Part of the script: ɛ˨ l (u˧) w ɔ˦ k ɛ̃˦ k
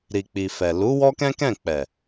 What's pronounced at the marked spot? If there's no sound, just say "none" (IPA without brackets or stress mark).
u˨˦